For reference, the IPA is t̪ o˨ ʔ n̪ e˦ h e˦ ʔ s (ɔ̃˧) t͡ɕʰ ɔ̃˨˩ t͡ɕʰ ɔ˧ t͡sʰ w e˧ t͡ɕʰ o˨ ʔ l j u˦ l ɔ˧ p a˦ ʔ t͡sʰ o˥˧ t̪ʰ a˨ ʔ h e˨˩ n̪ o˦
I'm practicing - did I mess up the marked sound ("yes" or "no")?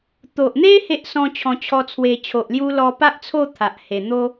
no